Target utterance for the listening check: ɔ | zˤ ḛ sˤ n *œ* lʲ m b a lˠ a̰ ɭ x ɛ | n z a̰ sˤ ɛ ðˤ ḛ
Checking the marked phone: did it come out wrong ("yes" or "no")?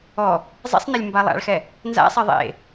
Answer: yes